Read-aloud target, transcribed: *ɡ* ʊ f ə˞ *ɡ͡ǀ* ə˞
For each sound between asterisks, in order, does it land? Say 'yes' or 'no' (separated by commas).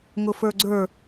no, yes